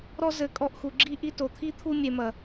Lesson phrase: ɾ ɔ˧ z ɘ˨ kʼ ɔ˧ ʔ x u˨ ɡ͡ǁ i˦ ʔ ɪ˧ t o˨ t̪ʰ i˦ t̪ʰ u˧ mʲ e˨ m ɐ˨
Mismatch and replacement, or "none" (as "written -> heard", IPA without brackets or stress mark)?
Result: ɪ˧ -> i˧